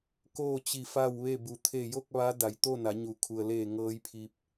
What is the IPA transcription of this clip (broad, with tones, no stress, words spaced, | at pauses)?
koː˥˨t͡ɕi˧˩ fa˥˨wʋe˥˨ bu˩t̪ʰe˧˩jo˥˨k̚ ʋa˧˥da˩˧jt̪o˥˨ na˩˧ɲu˩kʰu˩ə̯leː˧˩ ŋɤː˧˥jpʰi˧p̚